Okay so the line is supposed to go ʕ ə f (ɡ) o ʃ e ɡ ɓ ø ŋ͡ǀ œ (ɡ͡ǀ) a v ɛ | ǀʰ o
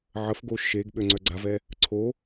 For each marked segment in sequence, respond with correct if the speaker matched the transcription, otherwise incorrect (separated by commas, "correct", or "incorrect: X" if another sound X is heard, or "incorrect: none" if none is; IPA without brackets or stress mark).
correct, correct